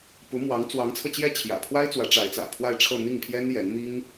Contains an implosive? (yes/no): no